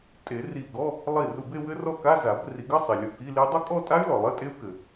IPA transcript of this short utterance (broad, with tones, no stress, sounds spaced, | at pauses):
tʼ e˨˩˦ r i˧˩ ɡ ɔ˧˥˧ | lˠ i˧˩ r u˧˩ b e˥˧ w ɘ˦˥ r ɔ˥˧ k a˧˥˧ z a˨˩˦ b r i˨˩˦ ɡ ɘ˧˥˧ sˤ i˩ lʲ ɔ˧˩ k i˧˥˧ l i˦˥ dˤ u˥˧ kʼ ɔ˥˧ tʼ a˦˥ y̯ l ɔ˩ lˠ ɘ˧˥˧ tʼ e˦˥ u̯ k ɘ˩